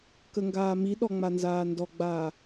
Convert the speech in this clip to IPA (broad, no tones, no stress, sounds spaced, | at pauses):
k ə ŋ ɡ aː m i ɗ ɔ ŋ͡m a n z aː n d ɔ ɡ͡b aː